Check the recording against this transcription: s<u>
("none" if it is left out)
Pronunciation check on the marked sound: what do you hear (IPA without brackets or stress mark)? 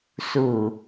u